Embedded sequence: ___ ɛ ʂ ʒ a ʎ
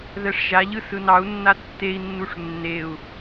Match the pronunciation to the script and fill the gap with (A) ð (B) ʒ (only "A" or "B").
A